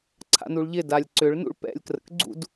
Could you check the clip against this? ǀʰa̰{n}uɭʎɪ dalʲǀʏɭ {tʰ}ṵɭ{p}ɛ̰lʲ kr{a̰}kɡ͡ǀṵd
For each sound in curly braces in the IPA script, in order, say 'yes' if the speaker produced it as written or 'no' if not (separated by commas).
yes, no, yes, no